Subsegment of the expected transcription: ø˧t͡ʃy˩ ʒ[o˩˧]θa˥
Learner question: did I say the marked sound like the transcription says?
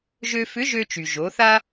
yes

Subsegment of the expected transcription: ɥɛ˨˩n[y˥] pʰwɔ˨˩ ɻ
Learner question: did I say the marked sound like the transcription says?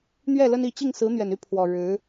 no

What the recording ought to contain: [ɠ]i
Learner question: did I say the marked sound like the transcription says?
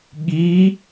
yes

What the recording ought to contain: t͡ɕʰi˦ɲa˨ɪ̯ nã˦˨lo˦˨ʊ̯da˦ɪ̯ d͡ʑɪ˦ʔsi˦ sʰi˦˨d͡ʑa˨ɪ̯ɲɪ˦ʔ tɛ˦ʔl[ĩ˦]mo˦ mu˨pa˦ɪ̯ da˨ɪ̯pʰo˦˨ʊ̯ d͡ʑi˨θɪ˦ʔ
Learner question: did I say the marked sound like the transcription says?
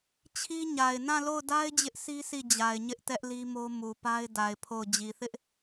no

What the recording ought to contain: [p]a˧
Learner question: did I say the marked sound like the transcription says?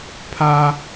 no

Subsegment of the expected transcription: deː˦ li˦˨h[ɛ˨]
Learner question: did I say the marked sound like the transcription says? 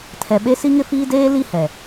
yes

